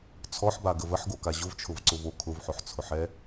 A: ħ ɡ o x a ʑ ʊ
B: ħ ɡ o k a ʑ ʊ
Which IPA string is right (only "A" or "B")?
B